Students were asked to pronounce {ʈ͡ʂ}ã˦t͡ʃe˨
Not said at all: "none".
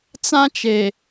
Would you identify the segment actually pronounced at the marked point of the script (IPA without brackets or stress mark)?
t͡s